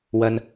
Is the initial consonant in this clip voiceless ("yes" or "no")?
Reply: no